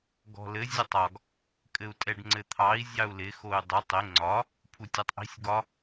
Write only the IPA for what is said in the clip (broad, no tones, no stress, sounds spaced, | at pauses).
ɡ ɔ̤ l ɘ zʲ ɘ tˤ ɒ ɡ | kʼ ɘ u̯ tʼ ɛ ɖ ŋ͡ǀ ɘ t̪ʰ ɑ i̯ zʲ ɑ u̯ l ɪ x o y̯ dˤ u tˤ ɪ ŋ͡ǀ ɒ | pʰ u tʲ ɛ tˤ ʔ i̤ sʲ ɡ ɒ